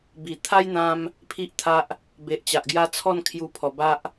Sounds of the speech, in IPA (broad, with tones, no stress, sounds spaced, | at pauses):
b i˨˩ t̪ʰ a˦ j n̪ ã˧ m | pʰ i˦ ʔ t̪ʰ a˦ ʔ | b e˨ ʔ t͡ɕ a˨ ʔ ɡ j a˧ t͡sʰ ɔ˥˧ n kʰ j u˧ pʰ ɔ˨˩ b a˦ ʔ